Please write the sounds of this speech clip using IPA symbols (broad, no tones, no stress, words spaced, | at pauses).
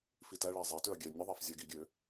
fitæɭæ zˤætøɐ̯ ɡʲɛ nʲəðˤæf zʲæɡiɡʲø